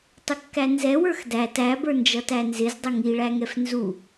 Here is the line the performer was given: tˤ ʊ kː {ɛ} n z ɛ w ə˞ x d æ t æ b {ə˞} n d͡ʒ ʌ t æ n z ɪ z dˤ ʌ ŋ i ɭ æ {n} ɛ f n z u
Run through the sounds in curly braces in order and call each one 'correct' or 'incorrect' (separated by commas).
incorrect, correct, incorrect